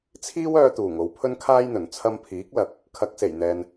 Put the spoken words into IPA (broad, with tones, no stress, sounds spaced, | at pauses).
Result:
t͡sʰ iː˥ w œː˧ t̪ uː˨˩ ŋ o˨˧ w pʰ ɵ˥ n kʰ aː˥ j n̪ ɵ˨˩ n t͡sʰ ɐ˧ m pʰ iː˨˥ k̚ l ɐ˨˥ k̚ | kʰ ɐ˨˥ k̚ s e˨˩ j n̪ ɛː˨ n